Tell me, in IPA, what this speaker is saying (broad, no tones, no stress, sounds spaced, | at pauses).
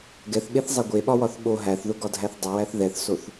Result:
ɡ ɛ θ ɓ e θ zˤ ɛ ɡʷ e ɓ ɒ w ɒ θ ɓ o ɦ æ θ ð ʊ ɡ ɒ dʱ æ θ dˤ ʊ w æ θ ð ɛ θ s o θ